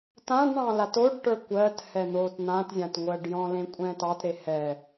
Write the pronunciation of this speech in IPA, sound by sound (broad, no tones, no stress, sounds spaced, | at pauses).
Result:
t ã ɖ ɳ ɑ̃ l a t o ɖ ʈ ə˞ kʷ ɜ t h ɛ n̪ o t n̪ ã t zʲ ã t ŋʷ ɜ ɖ j ɔ̃ l ẽ kʷʼ ɛ̃ t ɑ t ɾ e h ɛ